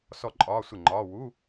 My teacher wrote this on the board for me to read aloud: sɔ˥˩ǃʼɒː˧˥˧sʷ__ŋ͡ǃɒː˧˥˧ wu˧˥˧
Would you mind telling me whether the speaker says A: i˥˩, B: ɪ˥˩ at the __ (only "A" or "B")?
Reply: B